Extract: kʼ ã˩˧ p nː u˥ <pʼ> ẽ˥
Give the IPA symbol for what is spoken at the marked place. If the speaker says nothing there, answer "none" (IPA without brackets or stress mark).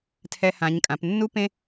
p